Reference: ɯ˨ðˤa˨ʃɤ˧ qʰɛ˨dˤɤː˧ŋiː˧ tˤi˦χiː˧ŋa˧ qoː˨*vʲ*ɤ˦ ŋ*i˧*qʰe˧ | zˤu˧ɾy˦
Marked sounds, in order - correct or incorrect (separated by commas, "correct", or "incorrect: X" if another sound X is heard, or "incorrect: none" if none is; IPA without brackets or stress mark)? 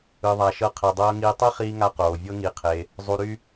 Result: correct, correct